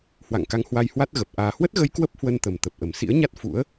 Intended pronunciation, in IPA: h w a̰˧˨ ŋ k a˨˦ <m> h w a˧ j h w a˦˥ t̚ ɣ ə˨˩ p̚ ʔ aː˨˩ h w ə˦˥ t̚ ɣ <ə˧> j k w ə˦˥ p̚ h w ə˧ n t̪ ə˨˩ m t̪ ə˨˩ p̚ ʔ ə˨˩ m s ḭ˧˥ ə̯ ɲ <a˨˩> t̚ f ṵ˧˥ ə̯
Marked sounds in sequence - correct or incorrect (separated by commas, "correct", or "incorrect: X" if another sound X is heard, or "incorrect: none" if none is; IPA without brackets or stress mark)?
incorrect: ŋ, correct, incorrect: a˦˥